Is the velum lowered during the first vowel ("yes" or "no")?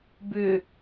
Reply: no